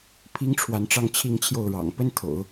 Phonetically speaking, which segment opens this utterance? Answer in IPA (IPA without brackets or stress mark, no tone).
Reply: pʰ